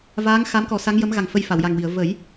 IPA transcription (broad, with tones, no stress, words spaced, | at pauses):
vaː˧˥ŋ xa˧˥mkɔ˨˩˦ sa˧˥ŋjə˧˥mɣa˨˩ŋ fə˧j fa˨˩˨wja˨˩ŋwi˨˩˨ə̯ və˨˩˦j